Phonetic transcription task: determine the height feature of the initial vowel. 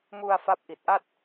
high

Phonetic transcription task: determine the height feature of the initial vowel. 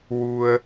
high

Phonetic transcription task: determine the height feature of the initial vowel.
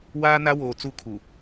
low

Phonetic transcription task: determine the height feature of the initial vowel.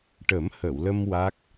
mid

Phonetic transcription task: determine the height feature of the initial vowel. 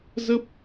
mid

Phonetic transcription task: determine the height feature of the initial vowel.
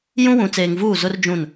high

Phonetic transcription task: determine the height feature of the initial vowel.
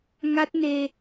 low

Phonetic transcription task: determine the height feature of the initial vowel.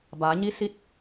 low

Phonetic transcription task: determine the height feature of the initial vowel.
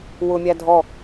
high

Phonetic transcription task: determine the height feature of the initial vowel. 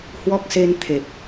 mid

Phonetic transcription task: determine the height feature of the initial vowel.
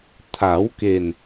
low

